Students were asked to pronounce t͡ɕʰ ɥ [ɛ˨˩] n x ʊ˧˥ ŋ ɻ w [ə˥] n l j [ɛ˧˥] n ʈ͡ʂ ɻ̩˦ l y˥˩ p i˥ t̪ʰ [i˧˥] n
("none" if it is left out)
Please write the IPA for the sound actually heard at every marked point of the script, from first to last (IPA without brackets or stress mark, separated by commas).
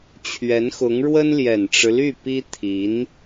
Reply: ɛ˧˥, ə˥, ɛ˨˩, i˧˥